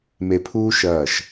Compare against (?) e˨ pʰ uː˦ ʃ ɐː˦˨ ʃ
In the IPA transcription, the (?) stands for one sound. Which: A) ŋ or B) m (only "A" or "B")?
B